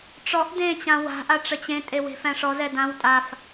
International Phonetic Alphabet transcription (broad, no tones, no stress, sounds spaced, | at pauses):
ʈ͡ʂ ɔ ʔ d ẽ t͡ɕ ã w a̤ ʔ a ʈ͡ʂ ə t͡ɕ ẽ tʼ e w e̤ f æ̃ ʂ ɔ z ɛ d ã w tʼ a f